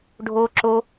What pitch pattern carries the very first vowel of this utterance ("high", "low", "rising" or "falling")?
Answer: high